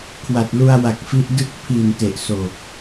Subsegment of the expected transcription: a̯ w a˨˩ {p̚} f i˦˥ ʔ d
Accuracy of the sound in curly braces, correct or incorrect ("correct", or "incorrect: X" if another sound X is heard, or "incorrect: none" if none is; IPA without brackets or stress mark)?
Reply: incorrect: k̚